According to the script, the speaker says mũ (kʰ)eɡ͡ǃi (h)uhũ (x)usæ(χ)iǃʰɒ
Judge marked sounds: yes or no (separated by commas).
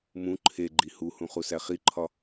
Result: no, yes, no, yes